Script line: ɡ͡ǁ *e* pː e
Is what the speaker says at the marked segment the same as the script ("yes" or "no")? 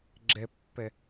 yes